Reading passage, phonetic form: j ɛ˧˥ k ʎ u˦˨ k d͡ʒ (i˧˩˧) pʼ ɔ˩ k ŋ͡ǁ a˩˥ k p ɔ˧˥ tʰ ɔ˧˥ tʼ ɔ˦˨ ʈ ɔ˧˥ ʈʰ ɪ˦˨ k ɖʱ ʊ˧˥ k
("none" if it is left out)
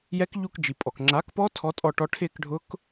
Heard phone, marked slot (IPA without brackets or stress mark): i˩